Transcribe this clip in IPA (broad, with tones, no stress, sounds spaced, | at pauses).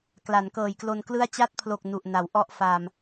k l a˩˦ n k ɤː˨˩ j k l o˧ n k l ɯ˥˩ a̯ t͡ɕ a˦˥ t̚ pʰ l o˨˩ k̚ n u˨˩ ʔ n a˩˦ w ʔ ɔ˥˩ ʔ f aː˧ m